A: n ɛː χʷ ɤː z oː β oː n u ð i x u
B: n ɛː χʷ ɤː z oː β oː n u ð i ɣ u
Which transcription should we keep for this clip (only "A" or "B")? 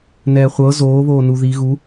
B